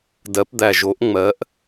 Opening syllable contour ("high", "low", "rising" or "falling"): rising